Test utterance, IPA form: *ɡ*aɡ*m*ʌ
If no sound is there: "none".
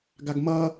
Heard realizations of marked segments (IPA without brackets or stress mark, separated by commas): ɡ, m